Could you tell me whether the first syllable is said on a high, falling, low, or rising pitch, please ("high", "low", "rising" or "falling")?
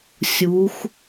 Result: rising